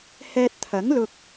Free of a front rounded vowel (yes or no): yes